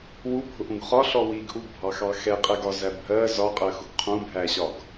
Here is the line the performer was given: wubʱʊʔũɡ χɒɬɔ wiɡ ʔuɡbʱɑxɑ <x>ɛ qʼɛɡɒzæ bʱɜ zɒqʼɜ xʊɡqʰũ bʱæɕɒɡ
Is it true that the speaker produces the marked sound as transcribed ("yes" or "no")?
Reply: yes